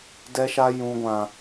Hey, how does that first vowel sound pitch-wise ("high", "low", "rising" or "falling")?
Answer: high